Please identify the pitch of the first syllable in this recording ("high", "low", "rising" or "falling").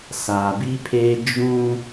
low